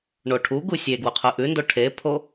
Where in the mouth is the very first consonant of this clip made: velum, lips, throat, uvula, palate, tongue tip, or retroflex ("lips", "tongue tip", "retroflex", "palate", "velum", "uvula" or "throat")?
retroflex